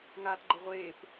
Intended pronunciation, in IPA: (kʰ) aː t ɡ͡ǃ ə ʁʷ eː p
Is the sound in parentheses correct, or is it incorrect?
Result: incorrect: ŋ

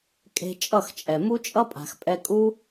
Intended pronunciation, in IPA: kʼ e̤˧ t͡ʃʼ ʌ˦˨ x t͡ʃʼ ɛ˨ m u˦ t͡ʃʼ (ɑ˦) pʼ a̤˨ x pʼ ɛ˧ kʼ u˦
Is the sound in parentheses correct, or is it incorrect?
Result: incorrect: ʌ˦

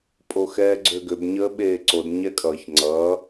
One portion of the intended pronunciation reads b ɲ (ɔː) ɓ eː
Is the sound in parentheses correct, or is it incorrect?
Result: incorrect: əː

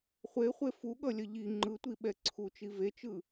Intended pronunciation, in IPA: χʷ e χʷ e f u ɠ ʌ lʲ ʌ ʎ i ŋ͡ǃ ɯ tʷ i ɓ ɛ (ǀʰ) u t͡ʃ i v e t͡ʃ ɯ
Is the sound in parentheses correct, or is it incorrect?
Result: correct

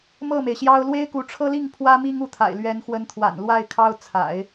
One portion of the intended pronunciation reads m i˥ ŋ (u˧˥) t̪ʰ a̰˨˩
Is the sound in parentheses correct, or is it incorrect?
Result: correct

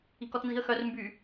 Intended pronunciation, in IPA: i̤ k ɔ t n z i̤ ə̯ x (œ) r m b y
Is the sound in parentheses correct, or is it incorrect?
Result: correct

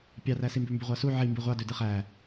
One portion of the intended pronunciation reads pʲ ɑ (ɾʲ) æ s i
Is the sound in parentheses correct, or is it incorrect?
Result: incorrect: r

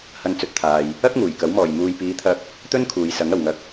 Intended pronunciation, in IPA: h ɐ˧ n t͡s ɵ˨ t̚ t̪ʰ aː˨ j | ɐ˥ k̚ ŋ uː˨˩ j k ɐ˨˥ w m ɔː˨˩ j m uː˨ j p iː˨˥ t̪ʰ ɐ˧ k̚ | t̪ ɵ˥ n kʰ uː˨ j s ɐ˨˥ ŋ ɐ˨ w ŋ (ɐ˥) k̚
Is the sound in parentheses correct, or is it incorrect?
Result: incorrect: ɐ˧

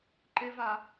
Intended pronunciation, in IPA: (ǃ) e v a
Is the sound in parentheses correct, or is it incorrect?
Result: correct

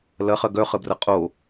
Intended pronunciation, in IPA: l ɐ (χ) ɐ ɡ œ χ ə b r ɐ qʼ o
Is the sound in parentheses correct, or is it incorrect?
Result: correct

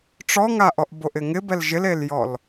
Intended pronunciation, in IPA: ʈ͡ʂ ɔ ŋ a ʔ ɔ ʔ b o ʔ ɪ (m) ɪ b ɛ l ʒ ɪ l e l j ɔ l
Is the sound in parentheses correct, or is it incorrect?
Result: incorrect: ŋ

